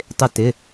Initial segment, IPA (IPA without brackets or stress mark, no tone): tˤ